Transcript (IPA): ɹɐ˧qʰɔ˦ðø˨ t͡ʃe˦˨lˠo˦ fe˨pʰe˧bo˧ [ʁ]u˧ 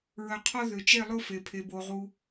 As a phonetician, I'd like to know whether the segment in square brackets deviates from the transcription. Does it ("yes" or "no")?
no